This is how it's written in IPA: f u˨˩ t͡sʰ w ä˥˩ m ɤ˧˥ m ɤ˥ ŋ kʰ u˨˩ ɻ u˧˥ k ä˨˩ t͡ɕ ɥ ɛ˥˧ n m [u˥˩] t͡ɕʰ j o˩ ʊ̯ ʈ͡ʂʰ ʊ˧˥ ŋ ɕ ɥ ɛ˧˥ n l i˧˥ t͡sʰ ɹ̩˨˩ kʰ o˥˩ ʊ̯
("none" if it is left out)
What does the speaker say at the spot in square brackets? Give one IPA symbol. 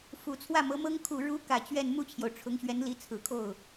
u˥˩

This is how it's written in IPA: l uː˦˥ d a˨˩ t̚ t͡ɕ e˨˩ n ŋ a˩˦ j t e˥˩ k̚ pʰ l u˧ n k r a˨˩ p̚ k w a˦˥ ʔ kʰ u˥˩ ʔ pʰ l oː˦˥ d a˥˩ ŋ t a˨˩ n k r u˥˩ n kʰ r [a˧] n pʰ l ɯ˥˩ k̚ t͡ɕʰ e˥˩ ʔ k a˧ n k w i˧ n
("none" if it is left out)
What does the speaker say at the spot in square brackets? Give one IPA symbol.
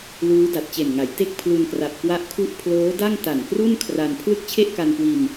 a˧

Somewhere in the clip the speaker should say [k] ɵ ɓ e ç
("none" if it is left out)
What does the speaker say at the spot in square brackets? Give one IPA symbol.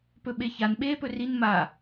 p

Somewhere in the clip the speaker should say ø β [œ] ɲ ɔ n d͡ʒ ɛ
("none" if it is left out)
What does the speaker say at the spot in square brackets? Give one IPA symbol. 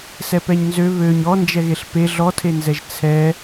ø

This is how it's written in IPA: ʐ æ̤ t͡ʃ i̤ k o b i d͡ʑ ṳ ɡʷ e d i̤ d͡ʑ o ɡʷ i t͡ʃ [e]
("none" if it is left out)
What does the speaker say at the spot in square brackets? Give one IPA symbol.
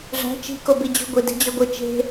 e̤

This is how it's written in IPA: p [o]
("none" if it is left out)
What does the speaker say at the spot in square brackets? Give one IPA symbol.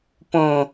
õ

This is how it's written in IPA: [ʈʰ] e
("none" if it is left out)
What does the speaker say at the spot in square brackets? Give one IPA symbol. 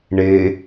ɳ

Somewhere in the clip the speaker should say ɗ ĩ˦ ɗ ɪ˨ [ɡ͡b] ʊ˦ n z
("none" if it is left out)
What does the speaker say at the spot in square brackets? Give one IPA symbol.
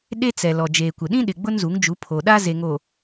ɡ͡b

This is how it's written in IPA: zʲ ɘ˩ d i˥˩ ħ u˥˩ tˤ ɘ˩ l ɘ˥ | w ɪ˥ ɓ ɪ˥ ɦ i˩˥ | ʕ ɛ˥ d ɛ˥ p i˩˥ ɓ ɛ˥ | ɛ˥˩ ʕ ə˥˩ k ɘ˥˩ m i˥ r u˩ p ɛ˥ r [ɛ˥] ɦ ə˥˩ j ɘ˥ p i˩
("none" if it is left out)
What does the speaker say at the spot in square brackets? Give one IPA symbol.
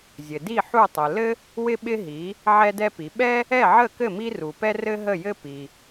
ɘ˥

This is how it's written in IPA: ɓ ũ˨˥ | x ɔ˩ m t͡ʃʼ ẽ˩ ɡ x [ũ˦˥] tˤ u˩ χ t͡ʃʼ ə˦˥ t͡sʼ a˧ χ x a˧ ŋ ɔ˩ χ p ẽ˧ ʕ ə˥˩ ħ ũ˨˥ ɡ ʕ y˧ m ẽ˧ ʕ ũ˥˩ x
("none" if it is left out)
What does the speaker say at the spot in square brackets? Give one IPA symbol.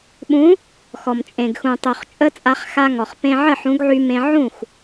ũ˩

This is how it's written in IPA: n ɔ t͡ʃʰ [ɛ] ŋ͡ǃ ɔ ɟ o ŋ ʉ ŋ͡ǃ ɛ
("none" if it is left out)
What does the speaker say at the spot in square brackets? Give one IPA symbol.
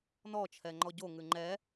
ɛ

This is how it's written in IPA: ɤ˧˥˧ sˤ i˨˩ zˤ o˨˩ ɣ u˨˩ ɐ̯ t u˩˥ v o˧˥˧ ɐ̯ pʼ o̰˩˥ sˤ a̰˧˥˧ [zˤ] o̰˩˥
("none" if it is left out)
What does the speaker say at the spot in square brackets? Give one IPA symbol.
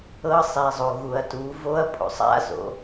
z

